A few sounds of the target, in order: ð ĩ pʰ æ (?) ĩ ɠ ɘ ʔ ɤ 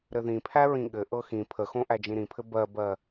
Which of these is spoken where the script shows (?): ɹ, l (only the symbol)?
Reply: ɹ